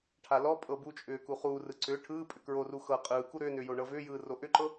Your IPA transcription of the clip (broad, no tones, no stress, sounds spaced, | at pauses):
ʈʰ a l ɔ pʼ ɤ b u t͡ʃʼ ʏː k u χ uː r ɯ ǀ ʏː ʈʰ ɯː pʼ ʏ k ɹ o r u x ɤ qʼ ɯː k u ɾ ʏː n ʏː j o ɳ ɤ v ʏː j ɯː r o ʔ ʏ ǃ ɤ